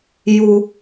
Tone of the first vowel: low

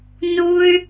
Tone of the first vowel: high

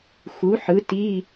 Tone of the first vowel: rising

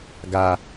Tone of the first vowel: low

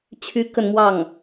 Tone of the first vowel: high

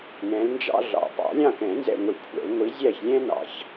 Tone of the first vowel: rising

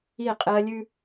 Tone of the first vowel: falling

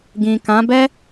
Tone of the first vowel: low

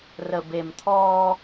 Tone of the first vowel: low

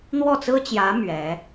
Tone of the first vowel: falling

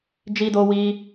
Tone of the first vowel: high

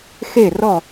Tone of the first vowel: falling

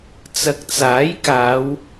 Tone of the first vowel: low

